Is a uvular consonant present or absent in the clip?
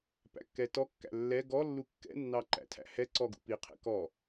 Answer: present